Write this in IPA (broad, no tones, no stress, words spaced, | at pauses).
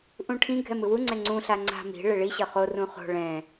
ʔũʈʰĩ ɡʱɛmɯwu ŋ͡ǀɛŋ͡ǀũ ɬaŋ͡ǀa̤ mi̤ ɭeɭi ɕʌχo rũχo̤ ɭɛ̃